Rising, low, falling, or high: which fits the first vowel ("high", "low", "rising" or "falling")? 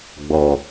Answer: low